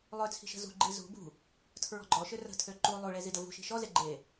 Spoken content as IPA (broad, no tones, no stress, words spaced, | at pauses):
lˠøt͡sʰi̤ ʃə̤zṳɡ͡ǃi zṳ bṳ | tʰɹɔ̤ɡ͡ǃɔʃø rə̤tʰø ǃu lˠuɭe zidəvṳʃi̤ ʃɔze ɡ͡ǃe